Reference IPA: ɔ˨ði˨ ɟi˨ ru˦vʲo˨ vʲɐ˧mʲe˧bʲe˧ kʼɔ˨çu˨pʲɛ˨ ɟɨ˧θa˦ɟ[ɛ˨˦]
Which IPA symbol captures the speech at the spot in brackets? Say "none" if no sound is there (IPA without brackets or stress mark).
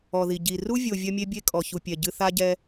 ɛ˦